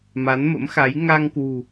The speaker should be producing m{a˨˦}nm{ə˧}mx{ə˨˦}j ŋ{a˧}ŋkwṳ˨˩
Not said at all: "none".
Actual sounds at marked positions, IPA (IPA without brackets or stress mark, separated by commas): a˨˦, ə̰˧˥, a˨˦, a˧